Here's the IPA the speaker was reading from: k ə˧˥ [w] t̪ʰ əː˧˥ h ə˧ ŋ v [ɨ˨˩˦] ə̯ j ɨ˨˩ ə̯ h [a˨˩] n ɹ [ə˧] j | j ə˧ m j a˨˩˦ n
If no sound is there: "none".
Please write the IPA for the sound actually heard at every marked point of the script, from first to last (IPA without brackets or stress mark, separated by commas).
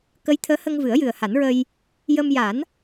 j, ɨ˨˩˦, a˨˩˦, ə˧